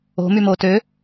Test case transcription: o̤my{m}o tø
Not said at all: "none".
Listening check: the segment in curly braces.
m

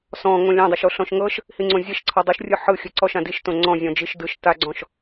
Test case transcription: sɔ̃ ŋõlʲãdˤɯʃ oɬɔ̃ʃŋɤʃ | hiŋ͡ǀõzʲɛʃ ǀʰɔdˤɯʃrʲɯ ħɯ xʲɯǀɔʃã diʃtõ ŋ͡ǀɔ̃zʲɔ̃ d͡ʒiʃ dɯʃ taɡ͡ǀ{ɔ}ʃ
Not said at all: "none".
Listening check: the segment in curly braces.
ɔ̃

